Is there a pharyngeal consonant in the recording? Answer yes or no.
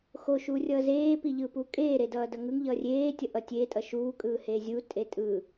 no